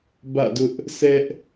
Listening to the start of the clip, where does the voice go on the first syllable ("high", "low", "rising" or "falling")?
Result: falling